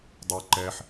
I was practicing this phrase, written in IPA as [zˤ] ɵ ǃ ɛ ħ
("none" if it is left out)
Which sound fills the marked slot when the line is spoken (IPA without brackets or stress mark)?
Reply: dˤ